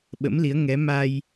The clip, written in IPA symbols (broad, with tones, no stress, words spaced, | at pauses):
ɓə̰˧˥mli˨˦ə̯ ŋɛ˨˦ ma˧j